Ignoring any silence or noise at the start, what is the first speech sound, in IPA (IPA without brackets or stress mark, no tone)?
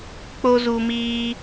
k͡p